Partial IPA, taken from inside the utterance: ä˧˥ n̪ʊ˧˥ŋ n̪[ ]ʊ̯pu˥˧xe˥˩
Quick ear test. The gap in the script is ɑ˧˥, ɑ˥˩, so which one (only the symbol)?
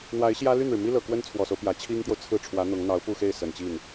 ɑ˧˥